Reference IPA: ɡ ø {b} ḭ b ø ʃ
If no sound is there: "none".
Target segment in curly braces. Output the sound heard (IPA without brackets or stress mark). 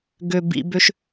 b